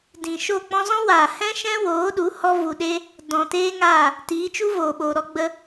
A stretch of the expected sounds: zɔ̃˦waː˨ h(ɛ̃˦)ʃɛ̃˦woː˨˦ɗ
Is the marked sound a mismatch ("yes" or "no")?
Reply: no